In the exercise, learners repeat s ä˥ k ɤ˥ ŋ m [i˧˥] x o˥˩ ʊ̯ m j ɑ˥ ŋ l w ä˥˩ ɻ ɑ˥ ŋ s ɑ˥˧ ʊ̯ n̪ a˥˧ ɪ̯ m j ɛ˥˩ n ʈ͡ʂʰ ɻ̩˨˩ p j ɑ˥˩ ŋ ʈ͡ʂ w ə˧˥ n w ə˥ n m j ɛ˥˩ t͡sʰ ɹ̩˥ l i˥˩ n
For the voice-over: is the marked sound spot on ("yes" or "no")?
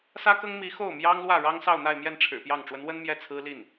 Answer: yes